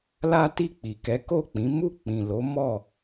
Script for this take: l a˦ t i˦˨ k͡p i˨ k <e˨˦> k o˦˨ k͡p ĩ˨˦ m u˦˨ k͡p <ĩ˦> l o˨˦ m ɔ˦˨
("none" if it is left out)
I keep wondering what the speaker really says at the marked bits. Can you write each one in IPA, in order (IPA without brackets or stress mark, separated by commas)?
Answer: ɛ˨˦, ĩ˨